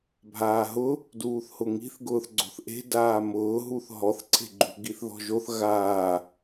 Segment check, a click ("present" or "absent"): present